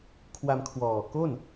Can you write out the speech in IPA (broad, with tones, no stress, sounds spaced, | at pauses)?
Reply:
kʰ w a˧ m kʰ w ɔː˨˩ k o˥˩ n